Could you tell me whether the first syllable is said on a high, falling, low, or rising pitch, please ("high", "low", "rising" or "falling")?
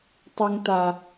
high